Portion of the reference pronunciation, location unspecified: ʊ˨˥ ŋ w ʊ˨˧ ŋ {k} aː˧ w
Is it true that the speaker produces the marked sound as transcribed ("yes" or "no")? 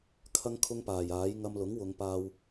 no